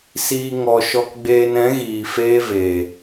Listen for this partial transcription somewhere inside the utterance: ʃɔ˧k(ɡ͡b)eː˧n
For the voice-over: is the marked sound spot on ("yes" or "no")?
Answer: yes